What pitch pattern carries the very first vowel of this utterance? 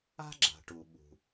high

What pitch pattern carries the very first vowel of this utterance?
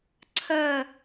falling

